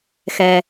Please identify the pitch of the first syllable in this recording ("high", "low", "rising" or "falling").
low